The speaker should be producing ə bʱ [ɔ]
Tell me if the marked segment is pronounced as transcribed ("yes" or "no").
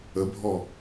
yes